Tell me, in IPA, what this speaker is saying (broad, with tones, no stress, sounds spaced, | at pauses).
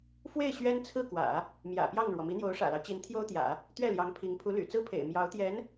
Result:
f w e˥˩ ɪ̯ ɕ ɥ ɛ˥ n t͡sʰ ɹ̩˥˩ k w ä̰˨˩˦ | m j ä̰˨˩ p j ɑ˥˩ ŋ ɻ w ɔ˩ m i˧˥ n̪ j o˧˥ ʊ̯ ʂ ä̰˨˩ l ɑ˦ ʊ̯ t͡ɕ i˧˥ n t̪ʰ j o˥ ʊ̯ t̪ j ä̰˨˩˦ | t̪ ɥ ɛ˥˩ l j ɑ˧˥ ŋ pʰ i˧˥ ŋ pʰ u˧˥ l y̰˨˩ t͡s ɹ̩˥ pʰ ḛ˨˩ ɪ̯ m j ɑ˧˥ ʊ̯ t̪ j ɛ˧˥ n